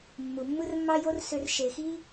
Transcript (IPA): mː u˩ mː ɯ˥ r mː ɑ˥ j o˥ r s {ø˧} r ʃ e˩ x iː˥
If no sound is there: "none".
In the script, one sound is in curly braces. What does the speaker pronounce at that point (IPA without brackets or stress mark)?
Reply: ø˧